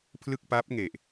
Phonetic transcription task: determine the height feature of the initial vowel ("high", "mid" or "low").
high